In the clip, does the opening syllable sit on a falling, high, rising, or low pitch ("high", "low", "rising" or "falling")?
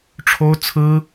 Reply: high